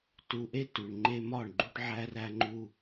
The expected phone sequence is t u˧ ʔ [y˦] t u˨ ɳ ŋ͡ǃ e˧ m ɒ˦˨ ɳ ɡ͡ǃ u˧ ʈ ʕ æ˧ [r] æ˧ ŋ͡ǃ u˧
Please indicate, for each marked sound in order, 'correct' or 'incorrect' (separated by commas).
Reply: incorrect, correct